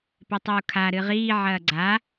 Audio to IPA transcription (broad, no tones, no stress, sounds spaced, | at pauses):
p e tˤ uː kʰ a ɾ ɨ ʁ iː ʕ ɐː ɡ͡ǀ a